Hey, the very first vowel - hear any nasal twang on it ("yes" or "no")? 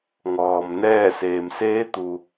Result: no